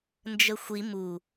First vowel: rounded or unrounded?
unrounded